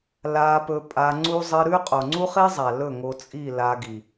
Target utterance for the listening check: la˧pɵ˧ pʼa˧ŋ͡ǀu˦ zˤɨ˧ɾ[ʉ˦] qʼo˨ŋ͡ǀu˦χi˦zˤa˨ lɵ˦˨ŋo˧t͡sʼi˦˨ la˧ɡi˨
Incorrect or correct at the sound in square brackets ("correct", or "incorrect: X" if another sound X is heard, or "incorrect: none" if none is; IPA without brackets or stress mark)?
correct